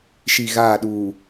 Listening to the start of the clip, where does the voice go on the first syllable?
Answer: low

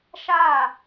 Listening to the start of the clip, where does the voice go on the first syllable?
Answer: falling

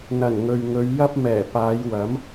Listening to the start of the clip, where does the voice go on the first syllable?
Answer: low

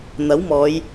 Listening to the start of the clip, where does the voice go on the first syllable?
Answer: rising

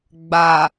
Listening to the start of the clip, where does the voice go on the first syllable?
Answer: low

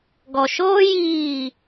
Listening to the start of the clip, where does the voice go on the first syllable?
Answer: low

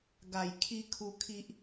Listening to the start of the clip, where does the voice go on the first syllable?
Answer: low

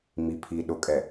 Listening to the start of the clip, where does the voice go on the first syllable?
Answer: low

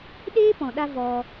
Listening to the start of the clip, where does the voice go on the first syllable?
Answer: high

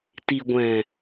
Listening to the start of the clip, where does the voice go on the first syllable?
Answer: low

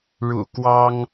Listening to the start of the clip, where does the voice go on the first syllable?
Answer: low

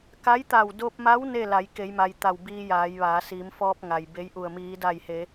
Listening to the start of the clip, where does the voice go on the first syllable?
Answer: rising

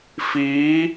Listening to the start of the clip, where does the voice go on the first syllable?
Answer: rising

